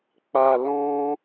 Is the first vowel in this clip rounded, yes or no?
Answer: no